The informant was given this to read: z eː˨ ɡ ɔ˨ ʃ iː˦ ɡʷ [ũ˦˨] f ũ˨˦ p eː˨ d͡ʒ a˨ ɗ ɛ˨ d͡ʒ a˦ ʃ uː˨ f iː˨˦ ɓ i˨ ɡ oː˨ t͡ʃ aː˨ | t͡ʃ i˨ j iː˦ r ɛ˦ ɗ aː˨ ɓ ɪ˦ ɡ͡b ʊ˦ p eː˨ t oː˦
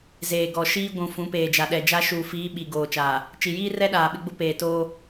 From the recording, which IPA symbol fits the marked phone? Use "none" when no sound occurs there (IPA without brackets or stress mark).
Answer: ũ˨